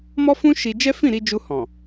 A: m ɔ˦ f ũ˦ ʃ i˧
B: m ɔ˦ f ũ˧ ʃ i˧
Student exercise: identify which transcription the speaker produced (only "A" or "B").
A